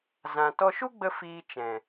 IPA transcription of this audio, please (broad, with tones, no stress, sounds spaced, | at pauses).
z ã˨ t ɔ˧ ʃ u˦ ɡ͡b ə˧ f iː˧ t͡ʃ ɛ̃˨